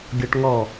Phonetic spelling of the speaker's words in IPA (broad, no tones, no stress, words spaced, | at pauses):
ɡʲɔʈŋɔ